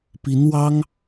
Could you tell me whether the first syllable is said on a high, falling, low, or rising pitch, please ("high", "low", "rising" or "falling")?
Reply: rising